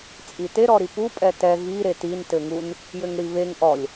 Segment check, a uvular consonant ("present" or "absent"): absent